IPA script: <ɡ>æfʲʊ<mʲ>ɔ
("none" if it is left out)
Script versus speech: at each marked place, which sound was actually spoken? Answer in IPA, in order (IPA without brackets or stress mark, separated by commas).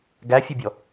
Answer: ɡ, bʲ